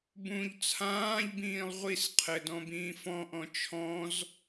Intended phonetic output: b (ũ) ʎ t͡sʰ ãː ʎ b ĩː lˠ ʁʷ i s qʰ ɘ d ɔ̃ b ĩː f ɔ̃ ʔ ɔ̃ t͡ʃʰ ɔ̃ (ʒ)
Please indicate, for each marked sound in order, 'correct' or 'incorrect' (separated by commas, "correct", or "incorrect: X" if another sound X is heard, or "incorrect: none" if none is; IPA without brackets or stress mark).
correct, incorrect: z